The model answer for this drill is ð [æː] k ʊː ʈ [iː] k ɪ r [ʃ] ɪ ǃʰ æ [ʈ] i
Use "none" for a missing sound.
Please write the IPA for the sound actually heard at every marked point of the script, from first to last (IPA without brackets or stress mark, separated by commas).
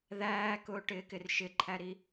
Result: æː, ɪː, ʃ, ɾ